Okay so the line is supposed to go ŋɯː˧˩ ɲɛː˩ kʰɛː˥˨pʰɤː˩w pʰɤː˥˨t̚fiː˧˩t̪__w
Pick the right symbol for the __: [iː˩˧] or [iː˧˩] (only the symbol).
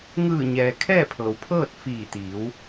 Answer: iː˩˧